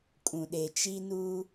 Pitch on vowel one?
low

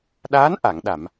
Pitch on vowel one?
rising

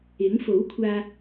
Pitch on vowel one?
rising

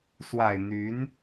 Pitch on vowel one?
low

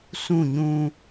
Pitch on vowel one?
falling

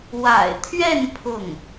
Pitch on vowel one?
low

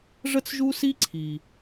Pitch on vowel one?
high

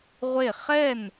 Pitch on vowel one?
falling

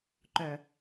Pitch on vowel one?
low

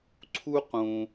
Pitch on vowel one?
high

